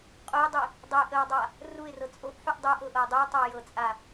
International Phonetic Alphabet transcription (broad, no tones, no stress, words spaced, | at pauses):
qʼojdˤi | dˤəj ʔəwdˤa | ruɪ̯rɤ t͡sʼoʔħuʔ dˤoʔɤʔɤɪ̯ dˤujtˤɤjɤt͡sʼa